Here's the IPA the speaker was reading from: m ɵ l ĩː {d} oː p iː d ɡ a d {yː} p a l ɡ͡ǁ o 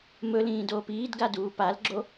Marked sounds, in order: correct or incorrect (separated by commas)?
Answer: correct, incorrect